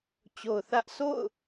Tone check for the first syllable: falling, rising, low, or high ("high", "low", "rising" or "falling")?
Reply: low